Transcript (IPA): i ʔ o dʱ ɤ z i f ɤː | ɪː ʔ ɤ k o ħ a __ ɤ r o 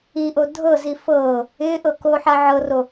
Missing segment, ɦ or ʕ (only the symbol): ʕ